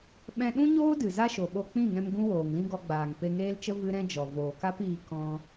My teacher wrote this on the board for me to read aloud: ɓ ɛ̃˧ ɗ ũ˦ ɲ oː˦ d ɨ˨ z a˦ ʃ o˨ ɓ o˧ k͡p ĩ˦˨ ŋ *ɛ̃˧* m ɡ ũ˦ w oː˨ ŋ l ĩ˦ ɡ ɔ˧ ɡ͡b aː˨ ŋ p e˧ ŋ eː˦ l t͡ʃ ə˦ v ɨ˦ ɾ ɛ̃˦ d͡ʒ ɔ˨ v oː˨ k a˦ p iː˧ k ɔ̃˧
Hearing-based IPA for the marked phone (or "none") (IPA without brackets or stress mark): ɛ̃˧